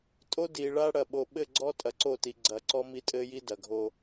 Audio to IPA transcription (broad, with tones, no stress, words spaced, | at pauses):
tʼo˦di˨ɭa˦ ɽɐ˨ɓo˨ɓɘ˦˨ɡ͡ǀɔ˦ tʼɐ˨ǀo˦˨ti˨ ɡ͡ǀɐ˨ ǀɔ˦mi˦tʼɘ˦ji˦ dɐ˨ɡʱo˦